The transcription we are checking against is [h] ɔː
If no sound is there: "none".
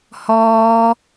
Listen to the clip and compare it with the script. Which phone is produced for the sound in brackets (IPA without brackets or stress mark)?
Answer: h